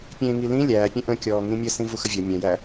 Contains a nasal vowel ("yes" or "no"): yes